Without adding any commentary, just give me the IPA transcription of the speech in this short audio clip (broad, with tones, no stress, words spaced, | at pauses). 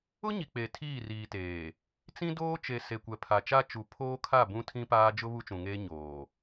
ʊ˦ɲi˨ k͡pe˨tʰiː˦˨riː˨teː˨ | t͡sĩ˦doː˦t͡ʃe˨ se˨kʷɛ˨pʰa˨t͡ʃa˦ t͡ʃu˨pʰoː˦kʰa˦˨ bũ˦tʰĩ˦paː˦ d͡ʒʊ˦ βu˦t͡ʃũ˨ŋeː˦ ɲoː˨